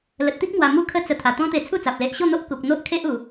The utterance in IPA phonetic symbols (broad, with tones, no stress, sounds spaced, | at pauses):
l ə˨ t̚ t̪ i˦ k̚ m w a˨˩ m u˥˧ kʰ ə˥˧ t͡s ə˧ t̪ʰ a˨˩ t̪ ɔ̃˦ t̪ e˧ t͡sʰ u˥˧ t͡s a˨ p̚ l e˨ ʔ ɕ o˥˧ n̪ o˦ ʔ k u˨ k̚ n̪ o˦ ʔ kʰ e˦ ʔ u˨˩